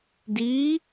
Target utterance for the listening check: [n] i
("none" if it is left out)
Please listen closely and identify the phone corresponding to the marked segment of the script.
d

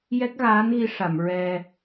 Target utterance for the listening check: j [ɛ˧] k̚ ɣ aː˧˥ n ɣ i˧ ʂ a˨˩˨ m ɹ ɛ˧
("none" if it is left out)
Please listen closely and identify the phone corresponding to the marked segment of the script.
ɛ˦˥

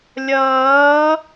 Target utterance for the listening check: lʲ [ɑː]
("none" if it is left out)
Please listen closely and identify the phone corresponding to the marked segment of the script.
ʌː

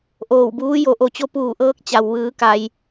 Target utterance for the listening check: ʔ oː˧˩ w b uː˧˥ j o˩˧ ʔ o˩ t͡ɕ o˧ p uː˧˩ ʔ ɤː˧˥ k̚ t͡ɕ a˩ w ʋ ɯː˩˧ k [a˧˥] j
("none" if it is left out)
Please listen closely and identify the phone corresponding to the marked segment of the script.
a˩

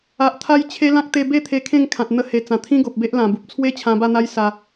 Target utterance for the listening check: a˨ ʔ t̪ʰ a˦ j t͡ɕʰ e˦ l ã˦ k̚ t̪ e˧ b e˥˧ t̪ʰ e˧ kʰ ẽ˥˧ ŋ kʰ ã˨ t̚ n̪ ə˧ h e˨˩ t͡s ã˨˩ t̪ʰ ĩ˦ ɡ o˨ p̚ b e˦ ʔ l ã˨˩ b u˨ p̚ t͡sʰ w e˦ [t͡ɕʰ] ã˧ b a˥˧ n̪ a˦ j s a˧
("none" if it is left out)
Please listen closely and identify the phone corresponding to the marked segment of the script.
t͡ɕʰ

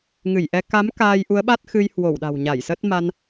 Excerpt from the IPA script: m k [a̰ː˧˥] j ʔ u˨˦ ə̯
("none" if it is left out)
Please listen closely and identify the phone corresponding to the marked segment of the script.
aː˧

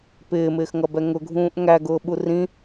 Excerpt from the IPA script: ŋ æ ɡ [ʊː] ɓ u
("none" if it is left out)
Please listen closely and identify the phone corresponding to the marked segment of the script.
ʊː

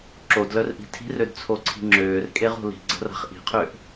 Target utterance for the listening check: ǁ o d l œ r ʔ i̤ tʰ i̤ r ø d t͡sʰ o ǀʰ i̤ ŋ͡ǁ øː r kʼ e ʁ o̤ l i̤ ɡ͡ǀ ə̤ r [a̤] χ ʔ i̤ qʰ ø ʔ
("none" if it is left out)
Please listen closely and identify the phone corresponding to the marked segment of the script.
a̤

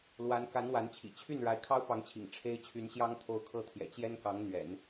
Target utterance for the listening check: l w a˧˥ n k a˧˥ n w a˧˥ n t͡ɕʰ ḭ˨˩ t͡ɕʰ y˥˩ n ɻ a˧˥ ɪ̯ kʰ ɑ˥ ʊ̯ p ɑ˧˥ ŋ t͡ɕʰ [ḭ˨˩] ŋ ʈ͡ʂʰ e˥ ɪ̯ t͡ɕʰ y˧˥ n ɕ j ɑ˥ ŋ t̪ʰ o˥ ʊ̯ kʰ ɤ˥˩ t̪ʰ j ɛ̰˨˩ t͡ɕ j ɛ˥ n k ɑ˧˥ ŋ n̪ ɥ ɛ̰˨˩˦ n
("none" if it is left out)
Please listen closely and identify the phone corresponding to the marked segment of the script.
ḭ˨˩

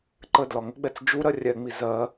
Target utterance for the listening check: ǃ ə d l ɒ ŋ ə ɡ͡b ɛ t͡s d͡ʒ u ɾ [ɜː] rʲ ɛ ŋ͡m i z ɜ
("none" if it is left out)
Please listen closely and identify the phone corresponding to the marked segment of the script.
ɜ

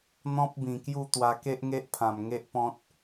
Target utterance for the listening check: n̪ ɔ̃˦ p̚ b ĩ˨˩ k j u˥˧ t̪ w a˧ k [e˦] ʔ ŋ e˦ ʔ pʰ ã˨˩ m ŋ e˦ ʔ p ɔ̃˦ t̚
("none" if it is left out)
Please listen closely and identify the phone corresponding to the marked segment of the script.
e˦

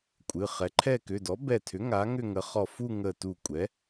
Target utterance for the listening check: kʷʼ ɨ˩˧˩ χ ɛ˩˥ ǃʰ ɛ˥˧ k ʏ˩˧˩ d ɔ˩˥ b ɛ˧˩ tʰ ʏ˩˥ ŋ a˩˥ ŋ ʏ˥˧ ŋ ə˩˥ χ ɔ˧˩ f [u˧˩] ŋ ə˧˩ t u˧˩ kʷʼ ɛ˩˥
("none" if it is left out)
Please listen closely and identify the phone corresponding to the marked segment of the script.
u˥˧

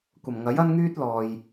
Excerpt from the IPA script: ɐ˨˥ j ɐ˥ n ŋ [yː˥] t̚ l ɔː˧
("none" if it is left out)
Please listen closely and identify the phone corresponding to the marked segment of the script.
yː˥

